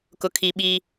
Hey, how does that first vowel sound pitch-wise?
high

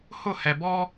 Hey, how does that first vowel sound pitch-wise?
falling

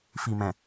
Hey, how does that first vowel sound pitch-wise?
low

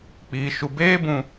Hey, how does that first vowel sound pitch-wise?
low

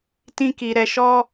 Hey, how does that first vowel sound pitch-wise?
high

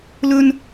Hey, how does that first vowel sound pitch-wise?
high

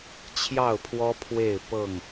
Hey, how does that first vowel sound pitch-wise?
falling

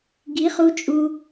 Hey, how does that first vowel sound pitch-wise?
rising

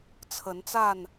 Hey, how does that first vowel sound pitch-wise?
rising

